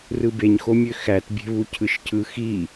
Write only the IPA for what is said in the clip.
r ɯ b e ɲ x o mʲ ø x æ t bʲ e̤ β u cʰ ɯ ʃ cʰ ɯ x i

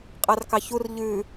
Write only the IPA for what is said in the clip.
qʼ ɑ r k ɑ ç u r ʎ ʉ

